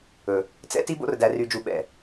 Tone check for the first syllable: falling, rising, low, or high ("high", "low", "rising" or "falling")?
low